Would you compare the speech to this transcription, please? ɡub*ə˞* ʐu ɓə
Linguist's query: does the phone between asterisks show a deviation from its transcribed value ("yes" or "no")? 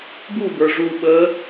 no